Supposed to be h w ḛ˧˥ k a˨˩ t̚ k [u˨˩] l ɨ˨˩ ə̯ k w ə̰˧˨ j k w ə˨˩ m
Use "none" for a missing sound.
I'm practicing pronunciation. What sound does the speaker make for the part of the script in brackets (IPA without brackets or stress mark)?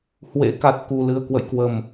u˨˩